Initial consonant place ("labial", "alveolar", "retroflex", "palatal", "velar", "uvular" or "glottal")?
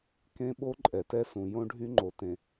velar